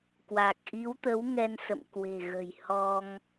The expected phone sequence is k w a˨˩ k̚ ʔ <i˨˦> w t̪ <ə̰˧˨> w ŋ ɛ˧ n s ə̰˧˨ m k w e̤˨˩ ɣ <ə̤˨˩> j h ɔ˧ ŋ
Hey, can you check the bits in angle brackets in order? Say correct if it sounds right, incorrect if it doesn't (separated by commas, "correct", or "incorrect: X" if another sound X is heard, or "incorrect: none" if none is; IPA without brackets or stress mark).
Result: correct, incorrect: ə˨˦, correct